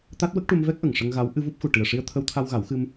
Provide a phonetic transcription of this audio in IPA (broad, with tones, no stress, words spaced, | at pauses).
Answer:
t̪a˦˥t̚ wə˦˥k̚ʈu˧mvɛ˦˥k̚ʔə˨˩ŋ ʂə˧ŋɣa˧˥w ʔɨ˧vu˦˥p̚xu˨˩ ʈi˨˩ə̯ʂi˧ə̯t̪ʰə˧wt̪ʰa˧w ɣa˨˩˦wxɨ˧m